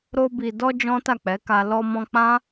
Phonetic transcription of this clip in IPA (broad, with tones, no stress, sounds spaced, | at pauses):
ɾ o˧ b i˨ d ɔ˧ d͡ʒ ɔ̃˦ t a˦˨ k͡p ɛ˨˦ k a˧ l ɔ˧ m ɔ̃˧ k͡p ã˦